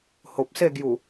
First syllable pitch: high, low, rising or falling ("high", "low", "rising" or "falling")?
low